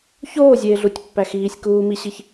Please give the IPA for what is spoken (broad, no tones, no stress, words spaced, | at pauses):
çoːzʲeːɮutʲ pːæxiːsʲ kuːmiɕiç